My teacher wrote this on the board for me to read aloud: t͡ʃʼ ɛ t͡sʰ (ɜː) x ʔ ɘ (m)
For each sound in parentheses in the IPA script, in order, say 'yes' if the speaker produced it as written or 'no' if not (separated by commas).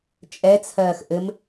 yes, yes